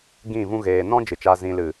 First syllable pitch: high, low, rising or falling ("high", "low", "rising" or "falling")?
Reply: falling